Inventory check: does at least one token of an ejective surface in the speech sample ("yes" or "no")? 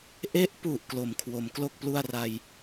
no